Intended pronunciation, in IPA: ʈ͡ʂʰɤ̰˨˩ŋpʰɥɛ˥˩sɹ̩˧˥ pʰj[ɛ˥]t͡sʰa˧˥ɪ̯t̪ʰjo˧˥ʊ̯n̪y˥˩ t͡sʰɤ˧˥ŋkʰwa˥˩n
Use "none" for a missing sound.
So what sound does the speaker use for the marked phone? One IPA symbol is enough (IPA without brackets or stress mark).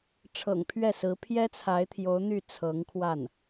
ɛ˥